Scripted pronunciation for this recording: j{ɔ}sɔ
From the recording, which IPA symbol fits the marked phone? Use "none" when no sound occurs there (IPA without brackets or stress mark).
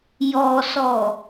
ɔ